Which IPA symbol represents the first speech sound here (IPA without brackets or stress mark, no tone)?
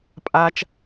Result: pʼ